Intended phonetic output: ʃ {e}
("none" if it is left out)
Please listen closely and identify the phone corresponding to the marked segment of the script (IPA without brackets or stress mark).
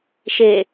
e